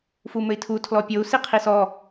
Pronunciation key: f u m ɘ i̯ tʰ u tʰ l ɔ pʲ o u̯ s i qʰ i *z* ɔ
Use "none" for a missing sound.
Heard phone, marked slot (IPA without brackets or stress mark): s